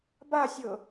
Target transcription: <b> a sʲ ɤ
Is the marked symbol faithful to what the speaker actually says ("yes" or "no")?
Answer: yes